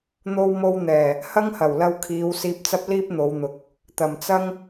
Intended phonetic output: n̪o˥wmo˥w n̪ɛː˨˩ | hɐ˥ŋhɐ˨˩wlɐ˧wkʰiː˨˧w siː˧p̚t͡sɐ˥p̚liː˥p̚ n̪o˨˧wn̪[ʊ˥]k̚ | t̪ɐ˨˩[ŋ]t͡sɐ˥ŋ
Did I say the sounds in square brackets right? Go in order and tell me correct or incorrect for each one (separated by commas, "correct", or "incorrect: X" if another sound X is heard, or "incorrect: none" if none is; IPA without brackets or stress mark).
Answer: incorrect: ʊ˨˥, incorrect: m